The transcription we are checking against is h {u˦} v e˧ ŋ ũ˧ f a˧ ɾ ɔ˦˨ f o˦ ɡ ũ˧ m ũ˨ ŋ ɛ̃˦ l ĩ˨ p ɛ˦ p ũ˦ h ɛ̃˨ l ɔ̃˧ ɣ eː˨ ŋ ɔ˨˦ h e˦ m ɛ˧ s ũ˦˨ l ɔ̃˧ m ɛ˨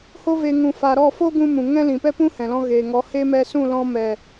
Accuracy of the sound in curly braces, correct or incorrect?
incorrect